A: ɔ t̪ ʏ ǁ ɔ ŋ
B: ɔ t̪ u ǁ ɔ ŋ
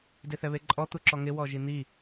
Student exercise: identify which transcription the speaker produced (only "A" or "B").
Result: B